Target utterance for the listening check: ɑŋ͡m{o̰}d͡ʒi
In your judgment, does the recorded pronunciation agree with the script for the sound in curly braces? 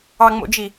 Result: yes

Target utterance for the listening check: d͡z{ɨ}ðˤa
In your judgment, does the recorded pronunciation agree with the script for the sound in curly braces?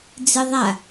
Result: yes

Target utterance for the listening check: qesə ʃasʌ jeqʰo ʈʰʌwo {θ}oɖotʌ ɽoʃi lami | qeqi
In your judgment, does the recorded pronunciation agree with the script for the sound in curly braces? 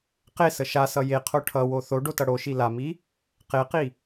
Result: yes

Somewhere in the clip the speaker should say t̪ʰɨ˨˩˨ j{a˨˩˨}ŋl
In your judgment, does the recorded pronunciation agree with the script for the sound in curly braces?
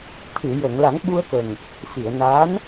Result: no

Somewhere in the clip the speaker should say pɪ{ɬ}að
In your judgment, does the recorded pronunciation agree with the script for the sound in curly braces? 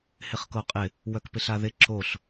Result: yes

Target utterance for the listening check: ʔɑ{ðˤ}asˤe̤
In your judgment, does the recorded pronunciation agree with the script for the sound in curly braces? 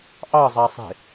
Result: no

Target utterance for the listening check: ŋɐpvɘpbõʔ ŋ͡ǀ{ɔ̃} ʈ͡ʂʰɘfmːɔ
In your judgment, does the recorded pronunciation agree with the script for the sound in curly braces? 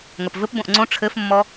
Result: no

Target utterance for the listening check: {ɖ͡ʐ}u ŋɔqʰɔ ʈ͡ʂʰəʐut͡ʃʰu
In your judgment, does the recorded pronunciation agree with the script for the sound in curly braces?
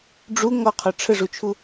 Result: yes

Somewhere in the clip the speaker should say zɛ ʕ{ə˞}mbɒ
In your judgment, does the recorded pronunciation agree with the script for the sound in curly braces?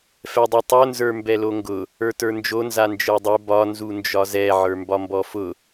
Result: yes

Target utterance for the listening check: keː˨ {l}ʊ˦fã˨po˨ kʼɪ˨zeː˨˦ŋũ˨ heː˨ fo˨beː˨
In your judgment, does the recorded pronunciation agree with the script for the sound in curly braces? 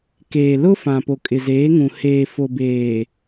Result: yes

